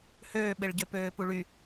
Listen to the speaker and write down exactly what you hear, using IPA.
h øː ɓ e ɭ ɟ ø p øː p u ɭ y

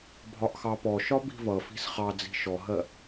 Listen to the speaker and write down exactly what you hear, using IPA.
bʱ ɒ ʔ x ɑ p ɔ ʃ ɒ b i̤ v ʌ f i̤ s χ ɑ d͡z i̤ ʃ ɔ ɦ ɜ

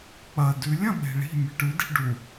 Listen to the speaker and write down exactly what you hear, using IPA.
k͡p ɐ d ʉ lʲ ɐ̃ ɓ e̤ ɭ i̤ mʲ ɨ ʈ ʉ d i̤ ɖ u

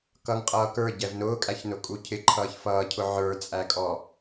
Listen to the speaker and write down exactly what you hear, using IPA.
k ʌ ŋ qʼ ʌː k ə˞ ɟ ɛ v n ʊː kʼ æ ç n ʊ kʼ u cʰ ɪ ǃʰ ʌː ç f ʌː cʰ ʊ ʕ ə˞ t͡sʼ æ kʼ ɔ

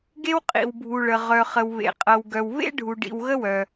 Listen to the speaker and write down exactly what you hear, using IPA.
ɡ e˧ w qʼ ḭ˩ w bʱ u˩ ɭ ə˩ ʁ œ˩ χ ə˩ w β ḛ˩ qʼ ɤ˩ w ɡ œ˩ w β ḛ˧ ɖʱ u˩ ɖ ḭ˩ w ɣ ə˧ w œ˩

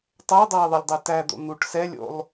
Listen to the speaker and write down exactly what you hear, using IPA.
tˤ æ dˤ æ ɪ̯ ðˤ i lʲ dˤ ɛ t æ d̪ o̰ n̪ u ʈ s ɛ lʲ o̰ lˠ

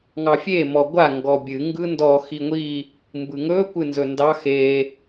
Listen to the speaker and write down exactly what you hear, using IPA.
ŋ ɑ fʲ e m ɔ ɡʷ a ŋ ɡ ɔ bʲ ɨ ŋ ɡ ɯ n d ɔ x i ŋʷ i | m b ɯ ŋ ɵ kʷ ɨ n z ɵ n d ɑ x e

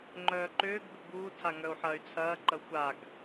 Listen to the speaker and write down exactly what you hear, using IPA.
ŋ͡ǃ œː ǃ ʏː ɡ b ʏ b uː tʰ a ŋ œ u̯ ħ ɐː y̯ t͡sʰ ɐː ǃ ɐ xʷ a ɡ

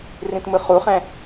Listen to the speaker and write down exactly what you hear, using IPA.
r ĩ t m ɯ χ u χ ɛ̃

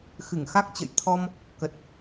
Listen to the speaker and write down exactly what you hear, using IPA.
x ɨ˧˩ ŋ x a˦˥ k̚ t͡ɕ ə̰˧˨ j t̪ʰ ɔ˧ m | k ə˨˩ t̚

